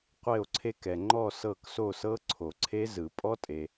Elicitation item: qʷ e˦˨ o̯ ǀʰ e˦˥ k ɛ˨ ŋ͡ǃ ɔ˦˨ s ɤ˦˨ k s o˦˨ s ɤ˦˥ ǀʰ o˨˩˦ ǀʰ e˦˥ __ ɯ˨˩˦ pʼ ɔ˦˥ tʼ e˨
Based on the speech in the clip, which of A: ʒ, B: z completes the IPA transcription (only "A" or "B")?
B